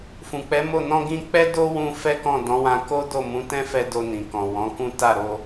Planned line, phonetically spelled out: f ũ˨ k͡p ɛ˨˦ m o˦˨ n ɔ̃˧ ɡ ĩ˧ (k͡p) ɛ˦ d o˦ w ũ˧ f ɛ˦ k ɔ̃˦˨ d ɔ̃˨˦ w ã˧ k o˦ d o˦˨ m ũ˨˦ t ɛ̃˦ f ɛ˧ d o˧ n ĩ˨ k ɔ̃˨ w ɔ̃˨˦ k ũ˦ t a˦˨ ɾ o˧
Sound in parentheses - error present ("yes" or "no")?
no